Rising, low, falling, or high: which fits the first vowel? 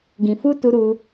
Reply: low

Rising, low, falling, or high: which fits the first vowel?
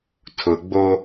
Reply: low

